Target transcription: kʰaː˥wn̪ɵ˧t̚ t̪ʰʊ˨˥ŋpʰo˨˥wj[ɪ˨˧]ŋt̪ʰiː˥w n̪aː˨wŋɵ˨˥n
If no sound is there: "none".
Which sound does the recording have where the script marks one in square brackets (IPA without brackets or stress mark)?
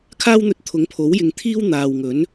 ɪ˨˧